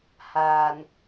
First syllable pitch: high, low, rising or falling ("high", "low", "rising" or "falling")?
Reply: low